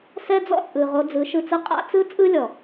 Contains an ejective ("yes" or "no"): yes